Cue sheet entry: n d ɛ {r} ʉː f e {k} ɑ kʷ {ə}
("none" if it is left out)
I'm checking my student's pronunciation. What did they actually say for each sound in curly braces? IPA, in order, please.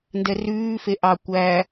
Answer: r, ʔ, æ

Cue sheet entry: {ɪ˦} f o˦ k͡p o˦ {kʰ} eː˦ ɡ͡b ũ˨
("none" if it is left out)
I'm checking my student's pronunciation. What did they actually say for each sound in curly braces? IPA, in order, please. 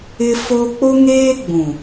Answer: ɪ˦, ŋ

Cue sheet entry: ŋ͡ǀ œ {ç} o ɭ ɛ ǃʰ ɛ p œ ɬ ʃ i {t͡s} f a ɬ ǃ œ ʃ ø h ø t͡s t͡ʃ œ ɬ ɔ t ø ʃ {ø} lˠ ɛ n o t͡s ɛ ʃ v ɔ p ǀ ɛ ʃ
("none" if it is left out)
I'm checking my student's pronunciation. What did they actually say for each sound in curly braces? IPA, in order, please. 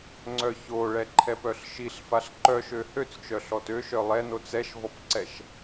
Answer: ç, ɬ, œ

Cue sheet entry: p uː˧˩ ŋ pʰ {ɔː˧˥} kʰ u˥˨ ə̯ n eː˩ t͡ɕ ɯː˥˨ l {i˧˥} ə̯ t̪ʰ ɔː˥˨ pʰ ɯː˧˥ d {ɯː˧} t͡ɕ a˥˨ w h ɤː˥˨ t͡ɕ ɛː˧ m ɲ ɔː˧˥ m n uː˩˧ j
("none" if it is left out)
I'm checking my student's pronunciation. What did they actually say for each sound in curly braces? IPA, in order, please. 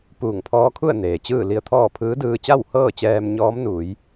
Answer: ɔː˧˥, i˧˥, ɯː˧

